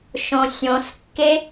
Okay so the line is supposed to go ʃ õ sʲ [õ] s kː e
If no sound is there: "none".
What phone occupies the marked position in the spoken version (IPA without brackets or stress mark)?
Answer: õ